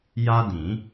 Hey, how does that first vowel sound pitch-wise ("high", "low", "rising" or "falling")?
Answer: high